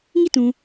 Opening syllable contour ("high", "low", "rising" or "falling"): falling